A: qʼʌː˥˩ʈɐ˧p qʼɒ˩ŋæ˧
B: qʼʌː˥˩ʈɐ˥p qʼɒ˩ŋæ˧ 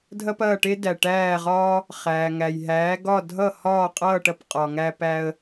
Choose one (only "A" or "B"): A